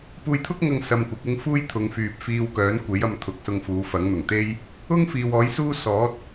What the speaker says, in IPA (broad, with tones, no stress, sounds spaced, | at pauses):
p uː˧ j t̪ʰ ʊ˥ k̚ ŋ ɐ˧ ŋ s ɐ˧ m kʷ ɐ˨˥ k̚ ʊ˥ ŋ f uː˥ j t̪ʰ ʊ˨˧ ŋ f yː˨ p̚ f iː˧ w k œː˨˥ n kʷ e˨˥ j ɐ˧ m t̪ʰ ʊ˨˥ k̚ s ʊ˧ ŋ f uː˨˧ f ɐ˨˥ ŋ n̪ ʊ˨˩ ŋ t̪ e˥ j | ʊ˥ ŋ f iː˨ w ɔː˨˥ j s uː˥ s ɔː˨˥ t̚